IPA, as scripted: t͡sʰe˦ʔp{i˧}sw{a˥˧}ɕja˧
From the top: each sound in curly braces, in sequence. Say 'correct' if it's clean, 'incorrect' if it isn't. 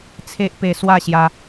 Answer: incorrect, correct

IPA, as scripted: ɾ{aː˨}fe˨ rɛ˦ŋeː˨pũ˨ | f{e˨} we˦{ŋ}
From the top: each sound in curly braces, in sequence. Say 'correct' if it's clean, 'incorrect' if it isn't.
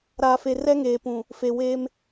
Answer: correct, correct, incorrect

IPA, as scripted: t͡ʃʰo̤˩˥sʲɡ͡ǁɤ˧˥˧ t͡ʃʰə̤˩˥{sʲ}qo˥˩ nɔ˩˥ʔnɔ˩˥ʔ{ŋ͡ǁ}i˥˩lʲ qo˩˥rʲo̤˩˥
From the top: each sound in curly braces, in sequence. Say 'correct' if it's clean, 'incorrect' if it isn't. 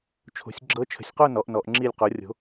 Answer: correct, correct

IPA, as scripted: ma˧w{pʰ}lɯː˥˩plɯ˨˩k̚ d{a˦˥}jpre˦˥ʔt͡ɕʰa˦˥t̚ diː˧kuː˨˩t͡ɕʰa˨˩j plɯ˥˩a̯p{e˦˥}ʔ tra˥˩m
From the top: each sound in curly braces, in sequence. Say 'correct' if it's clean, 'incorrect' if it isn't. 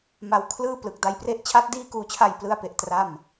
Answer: incorrect, incorrect, correct

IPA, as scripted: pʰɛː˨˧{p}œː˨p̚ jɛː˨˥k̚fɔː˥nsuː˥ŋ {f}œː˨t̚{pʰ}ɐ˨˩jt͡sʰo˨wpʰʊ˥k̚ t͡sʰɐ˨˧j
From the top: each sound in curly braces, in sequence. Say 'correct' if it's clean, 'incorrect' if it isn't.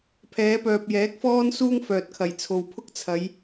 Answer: correct, correct, incorrect

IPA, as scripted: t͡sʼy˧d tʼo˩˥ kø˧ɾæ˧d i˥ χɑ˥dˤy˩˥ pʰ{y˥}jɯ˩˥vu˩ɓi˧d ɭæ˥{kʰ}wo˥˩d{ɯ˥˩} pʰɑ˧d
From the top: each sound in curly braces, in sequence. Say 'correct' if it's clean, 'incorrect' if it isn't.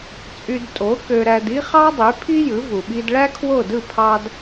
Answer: incorrect, correct, correct

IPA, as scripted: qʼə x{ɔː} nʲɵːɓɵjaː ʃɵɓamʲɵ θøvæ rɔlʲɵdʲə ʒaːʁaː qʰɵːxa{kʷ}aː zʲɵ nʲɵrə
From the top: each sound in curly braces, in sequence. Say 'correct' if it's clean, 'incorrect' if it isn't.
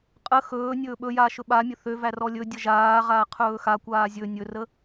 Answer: incorrect, correct

